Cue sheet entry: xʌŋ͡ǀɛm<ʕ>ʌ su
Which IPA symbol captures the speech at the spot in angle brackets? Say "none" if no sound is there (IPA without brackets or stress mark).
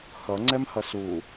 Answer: h